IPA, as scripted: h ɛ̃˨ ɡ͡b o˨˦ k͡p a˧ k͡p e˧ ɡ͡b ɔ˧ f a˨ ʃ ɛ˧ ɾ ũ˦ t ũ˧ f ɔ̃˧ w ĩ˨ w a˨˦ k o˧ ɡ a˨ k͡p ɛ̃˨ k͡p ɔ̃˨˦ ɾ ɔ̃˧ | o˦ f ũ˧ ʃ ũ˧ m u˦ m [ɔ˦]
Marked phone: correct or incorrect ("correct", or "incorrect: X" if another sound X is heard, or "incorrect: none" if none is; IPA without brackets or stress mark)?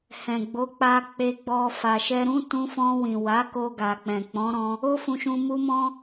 incorrect: ɔ̃˦